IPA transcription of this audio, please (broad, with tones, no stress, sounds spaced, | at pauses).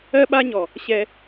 ɜ˦ ɓ a˦ ɲ ɔ˨ | ɕ ɛ˧